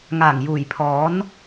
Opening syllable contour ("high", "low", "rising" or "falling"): low